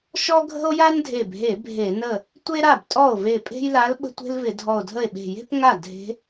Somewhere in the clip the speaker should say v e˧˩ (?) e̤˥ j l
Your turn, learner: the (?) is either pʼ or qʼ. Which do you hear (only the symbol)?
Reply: pʼ